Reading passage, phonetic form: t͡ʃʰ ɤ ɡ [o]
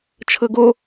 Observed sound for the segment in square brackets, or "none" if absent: o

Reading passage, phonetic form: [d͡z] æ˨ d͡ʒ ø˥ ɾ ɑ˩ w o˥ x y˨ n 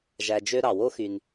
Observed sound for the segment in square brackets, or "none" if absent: ʒ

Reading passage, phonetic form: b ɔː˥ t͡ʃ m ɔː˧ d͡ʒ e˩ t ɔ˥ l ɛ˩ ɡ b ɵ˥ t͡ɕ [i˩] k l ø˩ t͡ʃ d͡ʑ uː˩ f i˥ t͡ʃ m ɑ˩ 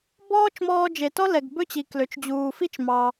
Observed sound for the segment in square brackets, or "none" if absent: i˩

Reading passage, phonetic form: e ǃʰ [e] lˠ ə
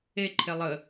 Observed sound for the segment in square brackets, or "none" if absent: e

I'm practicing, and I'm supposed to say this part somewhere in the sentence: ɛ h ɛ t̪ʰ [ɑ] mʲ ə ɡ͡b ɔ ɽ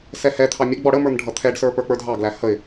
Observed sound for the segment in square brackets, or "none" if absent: ɑ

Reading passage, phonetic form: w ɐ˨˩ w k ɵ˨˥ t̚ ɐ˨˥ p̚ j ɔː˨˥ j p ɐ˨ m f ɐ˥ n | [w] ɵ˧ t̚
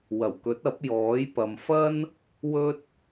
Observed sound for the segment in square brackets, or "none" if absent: w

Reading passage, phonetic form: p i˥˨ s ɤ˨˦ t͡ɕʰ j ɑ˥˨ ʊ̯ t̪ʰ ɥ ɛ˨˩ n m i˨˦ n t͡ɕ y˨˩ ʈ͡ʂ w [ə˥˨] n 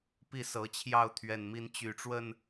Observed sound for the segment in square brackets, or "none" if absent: ə˥˨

